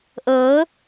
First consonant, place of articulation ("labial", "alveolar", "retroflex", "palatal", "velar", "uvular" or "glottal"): glottal